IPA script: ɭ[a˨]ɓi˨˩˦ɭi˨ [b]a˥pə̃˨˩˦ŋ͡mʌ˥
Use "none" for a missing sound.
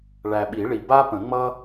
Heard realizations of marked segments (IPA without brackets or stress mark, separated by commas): æ˨, b